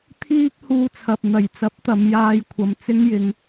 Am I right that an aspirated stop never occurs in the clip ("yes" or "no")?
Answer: no